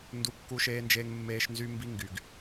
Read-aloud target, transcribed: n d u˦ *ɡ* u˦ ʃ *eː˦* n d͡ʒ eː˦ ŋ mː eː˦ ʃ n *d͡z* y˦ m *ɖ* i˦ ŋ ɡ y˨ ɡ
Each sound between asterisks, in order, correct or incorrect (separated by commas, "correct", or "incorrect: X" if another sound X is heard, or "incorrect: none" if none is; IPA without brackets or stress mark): incorrect: kː, correct, incorrect: z, incorrect: b